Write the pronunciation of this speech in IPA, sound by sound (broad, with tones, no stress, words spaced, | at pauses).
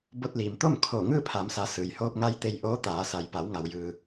bo˧t̚liː˩mt̪o˥˨m kʰoː˧˩ŋɯː˥˨pʰa˩˧msa˩˧ sɯː˩jhoː˧p̚ŋa˧j t̪e˧jʔoː˧˥ t̪aː˩˧sa˩j pa˩˧wŋa˩wjɯː˩